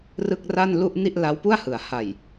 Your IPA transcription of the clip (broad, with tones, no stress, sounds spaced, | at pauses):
r ɯ˥˩ k̚ r a˥˩ n l u˥˩ ʔ n i˥˩ ʔ l a˦˥ w p u˥˩ a̯ h ɯ˩˦ a̯ h a˨˩ j